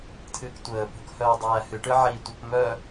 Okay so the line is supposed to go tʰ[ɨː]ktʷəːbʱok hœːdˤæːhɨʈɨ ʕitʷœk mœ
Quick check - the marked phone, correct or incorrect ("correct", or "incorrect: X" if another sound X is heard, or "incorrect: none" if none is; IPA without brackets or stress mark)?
correct